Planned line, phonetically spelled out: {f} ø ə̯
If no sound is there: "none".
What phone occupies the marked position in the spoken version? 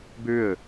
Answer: b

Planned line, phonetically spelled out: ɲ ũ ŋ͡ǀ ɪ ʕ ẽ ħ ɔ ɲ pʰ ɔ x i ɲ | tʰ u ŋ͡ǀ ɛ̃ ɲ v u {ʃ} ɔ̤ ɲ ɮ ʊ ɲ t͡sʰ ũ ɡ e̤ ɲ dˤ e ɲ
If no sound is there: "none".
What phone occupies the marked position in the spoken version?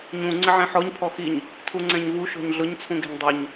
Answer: ʃ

